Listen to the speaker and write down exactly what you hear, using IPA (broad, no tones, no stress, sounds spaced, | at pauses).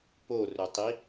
p o r ɵ tˤ i